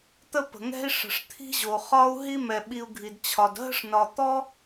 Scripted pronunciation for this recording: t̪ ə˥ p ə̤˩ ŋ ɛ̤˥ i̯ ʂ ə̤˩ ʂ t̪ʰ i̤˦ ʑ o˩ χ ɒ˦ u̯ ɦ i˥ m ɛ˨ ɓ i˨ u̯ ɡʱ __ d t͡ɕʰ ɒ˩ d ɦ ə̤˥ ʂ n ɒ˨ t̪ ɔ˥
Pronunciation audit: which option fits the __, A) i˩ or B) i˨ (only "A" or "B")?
A